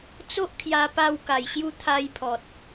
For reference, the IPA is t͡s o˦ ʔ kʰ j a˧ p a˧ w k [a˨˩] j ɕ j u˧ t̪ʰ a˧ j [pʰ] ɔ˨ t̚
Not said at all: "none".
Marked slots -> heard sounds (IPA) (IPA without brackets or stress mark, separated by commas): a˨˩, pʰ